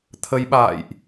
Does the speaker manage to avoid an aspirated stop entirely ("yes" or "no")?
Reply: no